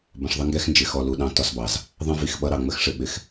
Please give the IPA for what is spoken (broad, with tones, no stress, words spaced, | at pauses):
bə̃˨ʂðˤə˦ŋɡɛ˦xnd͡ʒɪ˨ xɔ˨lu˨ɗɑ̃˦ tɒ˦sbɑ˨z | ðˤə̃˦vi˨xɓʌ˦ɾɑ˨ ŋ͡mə˦xʂɪ˨ ɓɪ˦x